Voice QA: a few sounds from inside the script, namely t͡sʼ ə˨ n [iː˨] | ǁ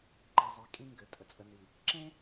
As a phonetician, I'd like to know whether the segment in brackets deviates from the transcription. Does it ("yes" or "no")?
yes